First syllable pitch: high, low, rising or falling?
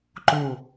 falling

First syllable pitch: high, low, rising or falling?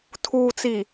low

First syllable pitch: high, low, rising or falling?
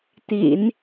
low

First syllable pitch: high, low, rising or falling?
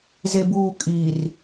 low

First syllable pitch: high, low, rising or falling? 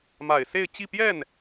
low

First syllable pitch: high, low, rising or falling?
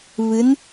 rising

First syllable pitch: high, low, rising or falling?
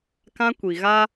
high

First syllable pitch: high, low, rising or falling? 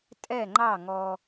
falling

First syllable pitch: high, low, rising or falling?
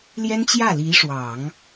high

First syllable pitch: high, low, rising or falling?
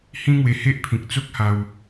high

